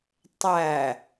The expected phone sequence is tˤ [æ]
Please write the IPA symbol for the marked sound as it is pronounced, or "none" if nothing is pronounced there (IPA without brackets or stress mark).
æ